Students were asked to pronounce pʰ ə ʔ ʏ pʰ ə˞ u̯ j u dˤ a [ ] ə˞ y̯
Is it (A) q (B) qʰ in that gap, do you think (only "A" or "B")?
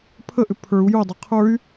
B